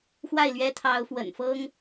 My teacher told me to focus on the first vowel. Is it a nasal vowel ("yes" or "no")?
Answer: no